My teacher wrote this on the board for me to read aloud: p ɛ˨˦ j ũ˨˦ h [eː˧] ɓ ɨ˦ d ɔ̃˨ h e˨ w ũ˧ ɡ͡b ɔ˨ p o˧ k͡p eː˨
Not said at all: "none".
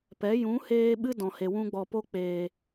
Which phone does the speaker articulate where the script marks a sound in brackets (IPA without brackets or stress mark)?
eː˧